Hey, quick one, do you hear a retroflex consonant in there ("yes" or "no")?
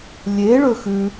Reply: yes